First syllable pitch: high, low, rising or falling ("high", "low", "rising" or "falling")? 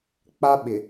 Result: high